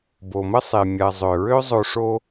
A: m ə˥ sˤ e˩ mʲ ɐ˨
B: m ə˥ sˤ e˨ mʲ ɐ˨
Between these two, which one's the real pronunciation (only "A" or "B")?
A